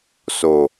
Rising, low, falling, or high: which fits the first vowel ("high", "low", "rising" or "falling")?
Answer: low